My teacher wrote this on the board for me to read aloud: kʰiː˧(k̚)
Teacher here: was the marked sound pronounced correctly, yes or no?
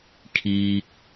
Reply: yes